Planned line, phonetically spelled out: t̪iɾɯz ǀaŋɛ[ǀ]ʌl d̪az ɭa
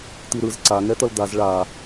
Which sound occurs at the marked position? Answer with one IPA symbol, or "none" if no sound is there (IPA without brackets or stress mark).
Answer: t̪